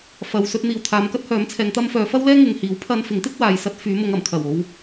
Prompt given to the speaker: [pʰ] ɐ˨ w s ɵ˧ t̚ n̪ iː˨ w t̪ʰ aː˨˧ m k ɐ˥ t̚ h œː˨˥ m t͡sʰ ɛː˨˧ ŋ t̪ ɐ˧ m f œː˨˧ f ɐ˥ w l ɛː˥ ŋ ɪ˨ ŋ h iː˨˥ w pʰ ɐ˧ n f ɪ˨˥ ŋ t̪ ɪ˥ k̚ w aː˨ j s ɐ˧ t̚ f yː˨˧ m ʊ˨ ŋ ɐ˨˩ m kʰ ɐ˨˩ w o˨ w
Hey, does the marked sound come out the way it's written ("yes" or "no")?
no